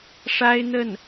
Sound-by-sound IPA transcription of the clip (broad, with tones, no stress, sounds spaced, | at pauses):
ʂ a˥ ɪ̯ n̪ ə˥˩ n